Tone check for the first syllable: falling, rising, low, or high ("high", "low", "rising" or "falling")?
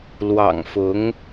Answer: low